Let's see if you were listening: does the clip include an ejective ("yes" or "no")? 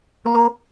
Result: no